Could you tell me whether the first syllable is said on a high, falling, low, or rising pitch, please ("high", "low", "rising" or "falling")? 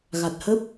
low